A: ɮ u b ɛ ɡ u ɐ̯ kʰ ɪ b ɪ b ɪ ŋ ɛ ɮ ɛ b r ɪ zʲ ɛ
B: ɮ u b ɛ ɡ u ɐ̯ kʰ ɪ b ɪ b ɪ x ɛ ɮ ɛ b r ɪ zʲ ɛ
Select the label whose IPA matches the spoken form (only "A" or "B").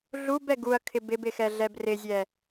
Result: B